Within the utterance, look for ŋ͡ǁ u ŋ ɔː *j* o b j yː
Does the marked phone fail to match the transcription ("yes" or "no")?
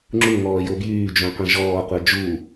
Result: no